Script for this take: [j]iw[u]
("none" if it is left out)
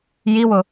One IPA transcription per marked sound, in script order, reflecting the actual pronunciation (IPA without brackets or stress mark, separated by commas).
j, ʊ